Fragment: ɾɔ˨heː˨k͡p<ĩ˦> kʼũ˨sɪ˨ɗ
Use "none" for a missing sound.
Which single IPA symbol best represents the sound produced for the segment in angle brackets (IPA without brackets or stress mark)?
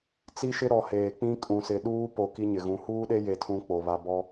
ĩ˦